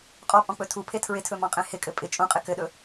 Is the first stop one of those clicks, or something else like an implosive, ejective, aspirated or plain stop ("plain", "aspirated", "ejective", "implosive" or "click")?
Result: ejective